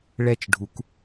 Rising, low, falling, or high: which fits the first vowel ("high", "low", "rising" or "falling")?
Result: falling